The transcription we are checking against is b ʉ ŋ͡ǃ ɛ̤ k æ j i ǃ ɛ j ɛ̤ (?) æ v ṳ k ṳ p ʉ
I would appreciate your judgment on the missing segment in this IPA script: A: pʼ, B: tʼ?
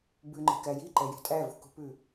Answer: B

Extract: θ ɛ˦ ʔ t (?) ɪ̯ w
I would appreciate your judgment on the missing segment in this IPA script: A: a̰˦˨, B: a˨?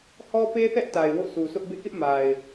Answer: B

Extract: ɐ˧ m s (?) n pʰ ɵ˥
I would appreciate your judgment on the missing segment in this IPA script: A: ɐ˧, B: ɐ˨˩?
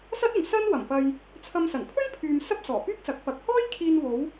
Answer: B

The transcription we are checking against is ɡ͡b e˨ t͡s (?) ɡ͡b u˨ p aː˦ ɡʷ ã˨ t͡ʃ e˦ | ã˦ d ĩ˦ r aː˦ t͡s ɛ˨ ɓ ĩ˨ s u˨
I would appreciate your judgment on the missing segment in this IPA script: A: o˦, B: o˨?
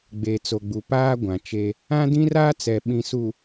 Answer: B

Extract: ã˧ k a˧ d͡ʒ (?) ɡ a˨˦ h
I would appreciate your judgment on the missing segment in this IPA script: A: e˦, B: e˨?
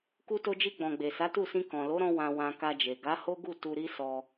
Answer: B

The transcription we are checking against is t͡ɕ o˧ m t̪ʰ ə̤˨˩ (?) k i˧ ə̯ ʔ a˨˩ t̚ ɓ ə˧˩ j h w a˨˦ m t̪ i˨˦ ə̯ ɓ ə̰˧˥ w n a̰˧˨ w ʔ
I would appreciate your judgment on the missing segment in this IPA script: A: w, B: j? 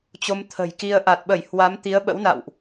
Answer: B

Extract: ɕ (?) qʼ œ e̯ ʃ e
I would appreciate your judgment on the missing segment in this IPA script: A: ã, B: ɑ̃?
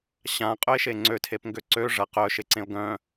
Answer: A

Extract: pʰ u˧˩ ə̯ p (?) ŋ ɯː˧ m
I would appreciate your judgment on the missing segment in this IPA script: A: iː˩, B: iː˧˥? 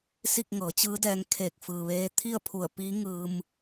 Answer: B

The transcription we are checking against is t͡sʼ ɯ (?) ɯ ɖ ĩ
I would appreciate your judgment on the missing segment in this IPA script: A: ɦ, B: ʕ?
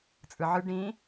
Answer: B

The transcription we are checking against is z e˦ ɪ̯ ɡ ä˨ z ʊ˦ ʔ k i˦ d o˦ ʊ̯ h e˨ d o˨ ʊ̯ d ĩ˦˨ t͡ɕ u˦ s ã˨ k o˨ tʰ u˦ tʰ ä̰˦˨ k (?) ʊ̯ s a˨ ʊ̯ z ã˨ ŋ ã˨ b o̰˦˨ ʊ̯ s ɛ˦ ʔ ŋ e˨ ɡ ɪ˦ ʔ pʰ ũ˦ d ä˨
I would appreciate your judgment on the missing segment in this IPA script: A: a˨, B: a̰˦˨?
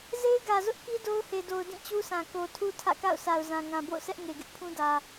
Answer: B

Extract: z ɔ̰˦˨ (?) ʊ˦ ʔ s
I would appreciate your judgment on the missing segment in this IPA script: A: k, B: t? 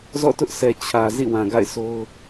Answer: B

